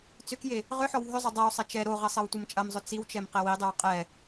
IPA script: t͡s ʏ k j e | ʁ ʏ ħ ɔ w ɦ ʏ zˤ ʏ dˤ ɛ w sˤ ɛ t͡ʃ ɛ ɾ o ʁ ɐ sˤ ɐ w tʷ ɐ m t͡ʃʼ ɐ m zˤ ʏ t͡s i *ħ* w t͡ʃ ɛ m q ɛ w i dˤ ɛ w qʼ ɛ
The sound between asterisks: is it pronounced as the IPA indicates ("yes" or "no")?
no